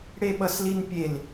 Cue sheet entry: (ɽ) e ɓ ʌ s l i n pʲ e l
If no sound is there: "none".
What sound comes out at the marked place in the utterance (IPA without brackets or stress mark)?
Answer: ɽ